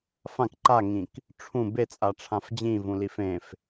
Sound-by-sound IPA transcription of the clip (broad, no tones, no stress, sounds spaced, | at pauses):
f ã k ǃ a ŋ ĩ k | ʈ͡ʂʰ ũ b e t͡sʼ a ʈ͡ʂʰ ã f d͡ʑ ĩ v ũ l i f ẽ f